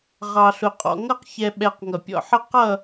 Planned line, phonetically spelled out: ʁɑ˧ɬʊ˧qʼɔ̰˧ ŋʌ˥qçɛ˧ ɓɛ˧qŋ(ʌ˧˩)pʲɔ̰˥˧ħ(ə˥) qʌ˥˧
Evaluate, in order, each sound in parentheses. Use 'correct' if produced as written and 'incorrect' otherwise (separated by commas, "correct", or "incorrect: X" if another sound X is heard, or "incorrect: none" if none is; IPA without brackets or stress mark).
correct, correct